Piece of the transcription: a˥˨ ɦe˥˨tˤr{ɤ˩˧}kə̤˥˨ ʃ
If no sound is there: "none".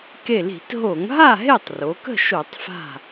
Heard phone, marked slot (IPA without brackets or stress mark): o˩˧